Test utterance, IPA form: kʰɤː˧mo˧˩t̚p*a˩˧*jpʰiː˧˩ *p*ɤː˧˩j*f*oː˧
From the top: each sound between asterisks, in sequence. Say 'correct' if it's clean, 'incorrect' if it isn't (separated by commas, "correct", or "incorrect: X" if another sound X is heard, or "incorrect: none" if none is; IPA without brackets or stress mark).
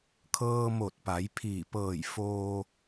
correct, correct, correct